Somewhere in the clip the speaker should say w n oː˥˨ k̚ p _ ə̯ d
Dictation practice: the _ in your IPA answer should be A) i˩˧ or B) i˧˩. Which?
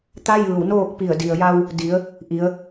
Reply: B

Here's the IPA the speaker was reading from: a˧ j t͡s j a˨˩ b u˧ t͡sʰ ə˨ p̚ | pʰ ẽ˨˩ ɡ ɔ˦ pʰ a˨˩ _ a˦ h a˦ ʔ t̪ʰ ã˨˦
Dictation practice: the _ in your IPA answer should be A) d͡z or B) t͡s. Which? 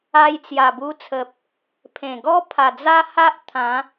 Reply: A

